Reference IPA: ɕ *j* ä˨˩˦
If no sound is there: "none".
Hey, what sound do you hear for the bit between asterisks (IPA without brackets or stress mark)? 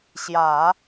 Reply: j